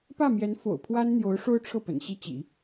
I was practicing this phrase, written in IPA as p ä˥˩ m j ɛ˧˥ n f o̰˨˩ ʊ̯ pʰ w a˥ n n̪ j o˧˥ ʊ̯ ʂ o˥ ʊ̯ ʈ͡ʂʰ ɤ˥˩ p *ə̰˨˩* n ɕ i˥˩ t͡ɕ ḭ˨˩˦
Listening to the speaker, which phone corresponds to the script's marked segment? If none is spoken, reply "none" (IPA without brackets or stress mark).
ə̰˨˩